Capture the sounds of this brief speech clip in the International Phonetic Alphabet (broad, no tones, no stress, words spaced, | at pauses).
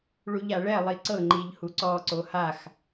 ɭuʎaɭɛ lˠiǀɤ ŋ͡ǃiʎhuǀɔ ǀohax